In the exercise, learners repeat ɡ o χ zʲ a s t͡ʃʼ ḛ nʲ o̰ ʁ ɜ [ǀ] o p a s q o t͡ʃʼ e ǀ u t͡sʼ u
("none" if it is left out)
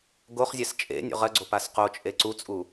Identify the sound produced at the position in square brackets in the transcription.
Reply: ɡ͡ǀ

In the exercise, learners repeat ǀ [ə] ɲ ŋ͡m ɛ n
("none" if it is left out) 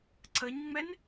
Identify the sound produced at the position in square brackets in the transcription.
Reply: ə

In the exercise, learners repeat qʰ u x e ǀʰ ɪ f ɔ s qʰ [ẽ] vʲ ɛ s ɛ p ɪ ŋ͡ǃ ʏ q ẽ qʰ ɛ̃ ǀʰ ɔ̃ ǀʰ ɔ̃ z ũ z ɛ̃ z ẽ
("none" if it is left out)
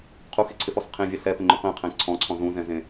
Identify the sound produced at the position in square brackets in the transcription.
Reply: ẽ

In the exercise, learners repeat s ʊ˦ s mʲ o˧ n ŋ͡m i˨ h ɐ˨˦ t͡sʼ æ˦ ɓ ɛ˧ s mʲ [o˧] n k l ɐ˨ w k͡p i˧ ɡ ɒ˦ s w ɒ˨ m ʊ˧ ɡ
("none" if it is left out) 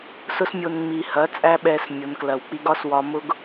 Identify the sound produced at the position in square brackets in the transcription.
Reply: o˨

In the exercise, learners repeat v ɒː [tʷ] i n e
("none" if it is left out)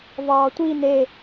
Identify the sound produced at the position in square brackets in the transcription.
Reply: tʷ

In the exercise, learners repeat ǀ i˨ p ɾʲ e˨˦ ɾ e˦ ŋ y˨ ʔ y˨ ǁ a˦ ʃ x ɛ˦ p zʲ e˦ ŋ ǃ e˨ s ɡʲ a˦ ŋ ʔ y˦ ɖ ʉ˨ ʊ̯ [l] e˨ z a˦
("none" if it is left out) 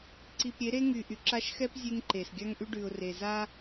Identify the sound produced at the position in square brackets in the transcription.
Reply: r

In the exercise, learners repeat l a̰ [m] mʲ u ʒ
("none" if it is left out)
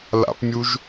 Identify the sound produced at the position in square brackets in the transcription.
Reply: p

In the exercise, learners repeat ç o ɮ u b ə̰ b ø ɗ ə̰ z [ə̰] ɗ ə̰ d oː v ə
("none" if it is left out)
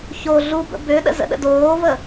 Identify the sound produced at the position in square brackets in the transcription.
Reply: ə̰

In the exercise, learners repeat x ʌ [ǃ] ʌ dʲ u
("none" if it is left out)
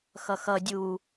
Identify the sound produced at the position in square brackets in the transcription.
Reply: x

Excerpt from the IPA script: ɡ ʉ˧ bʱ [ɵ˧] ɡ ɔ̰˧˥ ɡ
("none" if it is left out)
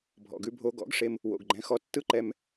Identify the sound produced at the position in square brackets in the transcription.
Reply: o˧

